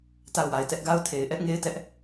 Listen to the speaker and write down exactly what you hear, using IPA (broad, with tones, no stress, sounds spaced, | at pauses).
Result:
t a˦˨ ʊ̯ w a˨ ɪ̯ t ɛ˦ ʔ ɡ a˦ ʊ̯ tʰ e˨ ɪ̯ ʔ ɛ˦ ʔ ŋ e˦ ɪ̯ t ɛ˦ ʔ